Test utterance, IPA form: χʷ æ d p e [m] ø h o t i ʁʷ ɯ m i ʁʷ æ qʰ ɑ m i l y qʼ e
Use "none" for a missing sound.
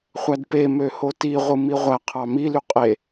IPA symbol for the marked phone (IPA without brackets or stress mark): m